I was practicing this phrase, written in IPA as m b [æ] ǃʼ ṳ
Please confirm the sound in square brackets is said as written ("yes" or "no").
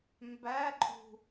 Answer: yes